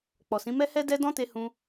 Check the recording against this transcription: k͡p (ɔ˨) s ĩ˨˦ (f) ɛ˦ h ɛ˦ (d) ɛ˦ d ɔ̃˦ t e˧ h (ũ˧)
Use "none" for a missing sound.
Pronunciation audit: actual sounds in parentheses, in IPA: ɔ˨, m, d, ũ˧

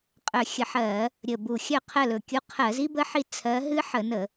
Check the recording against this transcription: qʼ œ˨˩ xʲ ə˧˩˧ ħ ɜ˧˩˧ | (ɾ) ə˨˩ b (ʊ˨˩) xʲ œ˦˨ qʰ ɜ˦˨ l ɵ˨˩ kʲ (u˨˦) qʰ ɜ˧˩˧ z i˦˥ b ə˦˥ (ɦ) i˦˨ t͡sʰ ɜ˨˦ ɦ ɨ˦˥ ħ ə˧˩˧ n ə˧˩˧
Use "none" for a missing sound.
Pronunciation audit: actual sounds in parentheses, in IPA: ɾʲ, u˨˩, u˨˦, ħ

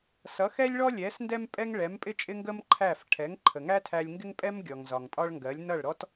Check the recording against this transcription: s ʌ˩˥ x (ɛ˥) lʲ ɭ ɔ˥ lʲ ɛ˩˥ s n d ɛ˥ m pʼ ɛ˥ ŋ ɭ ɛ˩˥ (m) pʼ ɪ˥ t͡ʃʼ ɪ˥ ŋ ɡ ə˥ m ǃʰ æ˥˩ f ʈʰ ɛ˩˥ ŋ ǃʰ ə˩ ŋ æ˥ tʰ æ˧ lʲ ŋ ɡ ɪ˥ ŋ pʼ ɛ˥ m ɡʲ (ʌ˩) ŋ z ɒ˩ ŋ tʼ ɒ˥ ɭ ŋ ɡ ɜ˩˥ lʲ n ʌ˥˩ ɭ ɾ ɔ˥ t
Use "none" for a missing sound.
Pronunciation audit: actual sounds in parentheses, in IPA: ɛ˥, m, ɔ˩

